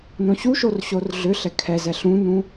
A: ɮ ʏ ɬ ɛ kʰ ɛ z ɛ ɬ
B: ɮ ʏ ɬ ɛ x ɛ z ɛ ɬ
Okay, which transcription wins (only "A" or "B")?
A